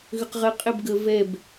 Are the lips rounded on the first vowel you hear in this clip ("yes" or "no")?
yes